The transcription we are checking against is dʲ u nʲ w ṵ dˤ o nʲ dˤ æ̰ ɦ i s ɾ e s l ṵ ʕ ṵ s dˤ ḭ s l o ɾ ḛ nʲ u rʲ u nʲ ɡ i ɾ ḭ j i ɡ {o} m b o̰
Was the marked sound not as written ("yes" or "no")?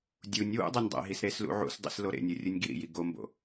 no